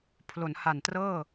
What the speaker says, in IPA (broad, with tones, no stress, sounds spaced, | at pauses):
pʰ l o˩˦ n h a˨˩ n t r ɤː˥˩